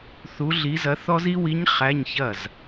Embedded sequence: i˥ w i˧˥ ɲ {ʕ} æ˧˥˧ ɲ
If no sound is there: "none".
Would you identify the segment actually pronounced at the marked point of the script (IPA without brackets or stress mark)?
χ